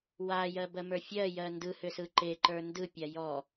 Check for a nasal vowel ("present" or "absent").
absent